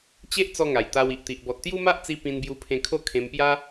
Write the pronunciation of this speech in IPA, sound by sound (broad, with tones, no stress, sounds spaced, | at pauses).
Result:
t͡ɕ e˦ ʔ t͡s ɔ˦ ŋ a˨˩ j t̪ a˧ w i˨ ʔ t̪ i˨ ʔ b ɔ˨ t̚ t̪ j u˦ m a˦ ʔ t͡s i˧ p ĩ˧ n b j u˧ pʰ ẽ˧ kʰ o˥˧ kʰ ẽ˧ m p j a˦